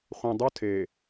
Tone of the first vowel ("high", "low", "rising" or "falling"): low